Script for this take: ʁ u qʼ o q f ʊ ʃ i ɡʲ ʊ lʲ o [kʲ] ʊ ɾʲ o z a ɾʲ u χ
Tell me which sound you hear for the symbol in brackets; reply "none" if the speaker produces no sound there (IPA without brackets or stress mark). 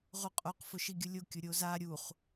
kʲ